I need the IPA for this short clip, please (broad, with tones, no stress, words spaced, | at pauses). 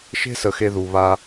ʃe̤˦sə˩ xe˨ðu˩βa˨